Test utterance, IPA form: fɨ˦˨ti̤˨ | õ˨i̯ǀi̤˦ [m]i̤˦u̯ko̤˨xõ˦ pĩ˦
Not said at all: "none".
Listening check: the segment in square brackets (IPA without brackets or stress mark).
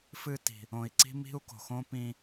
m